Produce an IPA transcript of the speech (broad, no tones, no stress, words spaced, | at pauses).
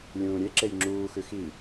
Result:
lʲũːɾʲeǁej ŋ͡ǁuːxʉ xi